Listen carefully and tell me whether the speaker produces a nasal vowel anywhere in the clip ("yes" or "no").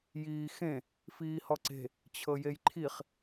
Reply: yes